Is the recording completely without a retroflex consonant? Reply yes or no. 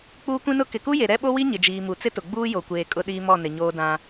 yes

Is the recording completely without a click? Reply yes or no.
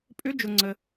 no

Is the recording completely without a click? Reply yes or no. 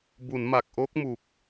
yes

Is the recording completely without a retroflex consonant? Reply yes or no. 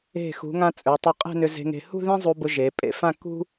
yes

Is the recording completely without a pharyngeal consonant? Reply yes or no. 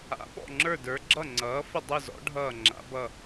yes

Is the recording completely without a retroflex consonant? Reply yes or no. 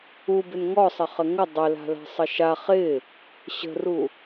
yes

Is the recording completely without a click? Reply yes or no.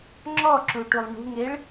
no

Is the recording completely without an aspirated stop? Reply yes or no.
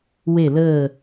yes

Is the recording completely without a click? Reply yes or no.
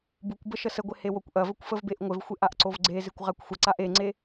no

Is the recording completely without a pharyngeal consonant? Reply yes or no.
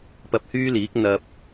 yes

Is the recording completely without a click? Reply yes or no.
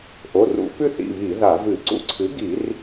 no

